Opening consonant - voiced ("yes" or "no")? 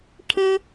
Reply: no